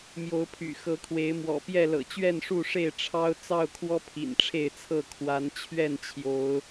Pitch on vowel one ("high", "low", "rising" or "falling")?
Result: rising